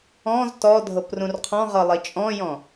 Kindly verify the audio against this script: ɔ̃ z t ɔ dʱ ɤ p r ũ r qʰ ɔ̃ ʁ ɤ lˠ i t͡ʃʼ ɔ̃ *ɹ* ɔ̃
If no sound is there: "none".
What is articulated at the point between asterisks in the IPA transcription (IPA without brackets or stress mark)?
j